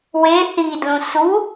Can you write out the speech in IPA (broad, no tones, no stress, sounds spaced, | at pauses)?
w e θ i d l ũ s u